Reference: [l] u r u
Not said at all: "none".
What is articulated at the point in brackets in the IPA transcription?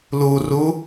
l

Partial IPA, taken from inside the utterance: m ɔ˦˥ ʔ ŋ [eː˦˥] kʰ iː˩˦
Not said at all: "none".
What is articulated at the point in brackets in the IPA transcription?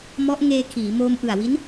eː˧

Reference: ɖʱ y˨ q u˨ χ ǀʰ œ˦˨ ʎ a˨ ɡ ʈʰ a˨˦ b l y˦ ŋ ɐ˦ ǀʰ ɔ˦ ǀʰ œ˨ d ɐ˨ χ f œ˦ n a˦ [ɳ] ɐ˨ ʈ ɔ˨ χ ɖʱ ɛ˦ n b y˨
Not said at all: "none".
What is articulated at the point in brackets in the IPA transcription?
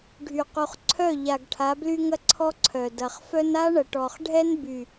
ɳ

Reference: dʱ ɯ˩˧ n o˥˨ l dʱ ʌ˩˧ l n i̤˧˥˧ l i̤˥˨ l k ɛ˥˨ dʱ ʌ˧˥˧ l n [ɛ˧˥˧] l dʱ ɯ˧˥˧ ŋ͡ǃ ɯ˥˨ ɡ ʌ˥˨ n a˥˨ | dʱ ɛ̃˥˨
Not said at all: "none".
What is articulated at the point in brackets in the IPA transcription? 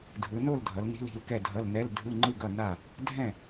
ɛ˧˥˧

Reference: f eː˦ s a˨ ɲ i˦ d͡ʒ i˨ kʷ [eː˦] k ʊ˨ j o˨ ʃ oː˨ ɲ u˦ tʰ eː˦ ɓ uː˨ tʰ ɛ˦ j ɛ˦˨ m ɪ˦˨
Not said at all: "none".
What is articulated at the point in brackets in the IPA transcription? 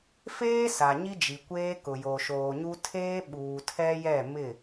eː˦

